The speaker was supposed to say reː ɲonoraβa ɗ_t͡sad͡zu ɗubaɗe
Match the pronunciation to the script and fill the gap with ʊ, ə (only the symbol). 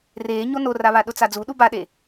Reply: ʊ